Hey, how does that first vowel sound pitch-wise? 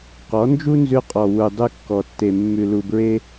rising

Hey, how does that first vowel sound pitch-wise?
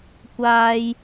high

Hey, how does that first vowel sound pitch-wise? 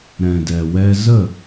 low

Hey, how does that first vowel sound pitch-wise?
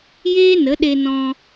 high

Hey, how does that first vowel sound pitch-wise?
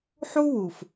high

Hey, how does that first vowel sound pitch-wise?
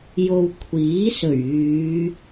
low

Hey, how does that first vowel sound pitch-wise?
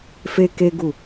high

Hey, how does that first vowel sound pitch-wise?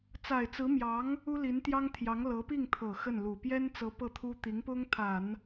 low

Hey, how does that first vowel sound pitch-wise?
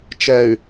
low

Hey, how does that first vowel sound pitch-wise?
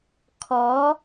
rising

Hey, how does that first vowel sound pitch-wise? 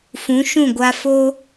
rising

